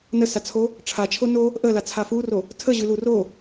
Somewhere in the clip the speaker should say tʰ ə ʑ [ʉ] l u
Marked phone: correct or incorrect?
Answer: correct